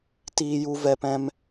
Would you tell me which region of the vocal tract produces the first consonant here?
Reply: tongue tip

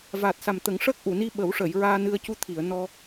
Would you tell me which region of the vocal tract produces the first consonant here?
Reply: lips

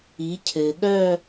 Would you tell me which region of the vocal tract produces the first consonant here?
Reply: palate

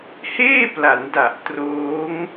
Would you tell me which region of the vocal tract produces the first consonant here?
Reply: throat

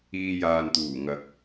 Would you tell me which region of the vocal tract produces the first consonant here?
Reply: palate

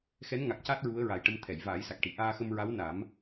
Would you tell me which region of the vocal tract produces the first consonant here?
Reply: velum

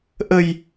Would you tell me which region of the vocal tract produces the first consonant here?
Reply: throat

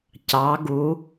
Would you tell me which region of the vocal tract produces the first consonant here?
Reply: palate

